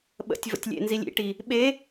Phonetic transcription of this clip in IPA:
ɓ ə̰ tʲ v ə̰ tʲ lʲ ḛ n z i lʲ ḭ ʈ i | ɓ e

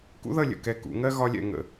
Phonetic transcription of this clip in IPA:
k ṵ˥ ð ʌ˥˧ lʲ ə̰˧˩ k ɛ˧˩ k ṵ˩˧ ŋ ɜ˥ ɣ ɒ˥ lʲ ɛ̰˥˧ ŋ ə̰˧˩

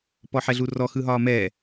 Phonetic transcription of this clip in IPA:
p ɔ ħ ɛ ɮ u r ɔ x ɯ ɦ ɒː m ɛː

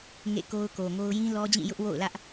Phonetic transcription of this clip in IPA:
ŋ ḛ˦˨ k o˦ ʊ̯ k o˨ ŋ o˦ ʊ̯ j ĩ˦ l ɔ˦ d͡ʑ ĩ˦˨ j ʊ˦ ʔ w o̰˦˨ ʊ̯ l ä˦ ʔ

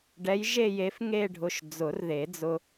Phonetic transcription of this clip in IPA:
ɖ ɛ˨˥ j ʒ e˥˧ j e˨˥ f ŋ e˥˧ ɖʱ ʊ˧ ʃ d͡z ʊ˨˩˦ r ð e˨˩˦ d͡z ʊ˧

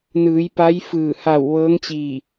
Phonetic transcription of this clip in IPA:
n ɯː˩˧ j p a˧˥ j f ɯː˧˩ h a˧˩ w ʋ ɤː˧˥ ŋ t͡ɕ iː˧˩

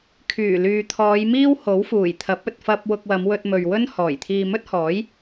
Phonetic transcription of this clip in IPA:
kʰ yː˨˩ l yː˨ t̪ʰ ɔː˨˧ j m iː˥ w h o˨˥ w f uː˨˩ j t̪ʰ ɐ˨˥ p̚ ɵ˨ t̚ f ɐ˧ p̚ w ʊ˧ k̚ w ɐ˨˧ m w ɵ˧ t̚ m ɵ˨ ɥ w ɵ˥ n h ɔː˨˩ j t̪ʰ iː˧ m ɵ˥ t̚ h ɔː˨˥ j

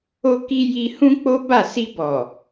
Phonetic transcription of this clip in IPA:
o˧ k i˧ j i˧ h ũ˦ k͡p o˦ b a˦˨ s i˧ b ɔ˨

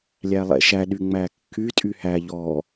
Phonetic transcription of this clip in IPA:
lʲ æ lˠ ɛ̰ ʃ æ ɗ y ŋ͡m æ kː y tʼ y h æ ʎ ɔ

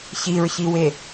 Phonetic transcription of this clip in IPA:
ç i ɹ ç i w e

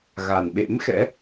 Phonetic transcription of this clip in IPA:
ɣ a˨˩ n ɓ ḛ˧˥ m x ɛ̰˧˥

